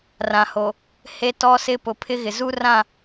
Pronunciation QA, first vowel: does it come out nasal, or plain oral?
nasal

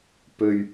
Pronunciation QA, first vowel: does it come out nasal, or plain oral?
oral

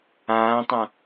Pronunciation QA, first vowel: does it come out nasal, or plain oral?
nasal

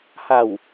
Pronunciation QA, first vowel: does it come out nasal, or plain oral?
oral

